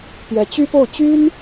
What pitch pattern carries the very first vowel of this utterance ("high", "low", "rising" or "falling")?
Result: rising